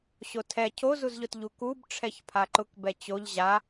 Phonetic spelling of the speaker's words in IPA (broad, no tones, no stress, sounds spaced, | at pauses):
ɕ o tʰ ɛ cʰ o z u z ʎ ʊ t ʎ u k u b ʈ͡ʂʰ ɛ ç pʰ a ǃ ʊ k b ɛ t͡ɕ o ʎ ʑ a